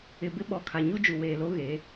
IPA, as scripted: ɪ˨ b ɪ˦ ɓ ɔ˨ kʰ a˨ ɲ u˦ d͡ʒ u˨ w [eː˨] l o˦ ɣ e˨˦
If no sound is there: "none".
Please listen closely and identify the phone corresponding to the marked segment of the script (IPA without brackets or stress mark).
eː˨